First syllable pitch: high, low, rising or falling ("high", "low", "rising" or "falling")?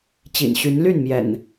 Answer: low